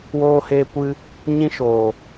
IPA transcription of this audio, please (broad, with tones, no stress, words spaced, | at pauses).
woː˧heː˧kʷɨ˧ | ɲĩ˧ʃoː˨